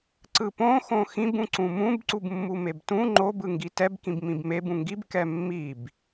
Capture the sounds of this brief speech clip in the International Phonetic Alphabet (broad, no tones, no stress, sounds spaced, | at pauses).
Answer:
ǀ ɯ p õ x õ x ĩ b ũ ǀ ũ m ũ b ǀ u b mː u m e b t ũ ŋ͡ǃ o b ɯ ŋ ɡ i t ɛ b k ĩ b m ĩ b m e b ũ ŋ ɡ i b k ɛ mː i b